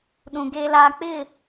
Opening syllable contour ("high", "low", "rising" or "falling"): low